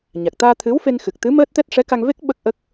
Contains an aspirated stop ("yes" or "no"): yes